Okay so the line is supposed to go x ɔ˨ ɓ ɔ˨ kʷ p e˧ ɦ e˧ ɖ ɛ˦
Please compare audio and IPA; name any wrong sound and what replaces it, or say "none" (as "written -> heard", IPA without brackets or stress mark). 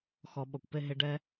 none